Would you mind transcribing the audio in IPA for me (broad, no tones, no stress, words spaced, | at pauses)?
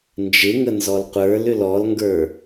nd͡ʒɪŋə nzɔlqʷə˞lʏl ɔlŋɡə˞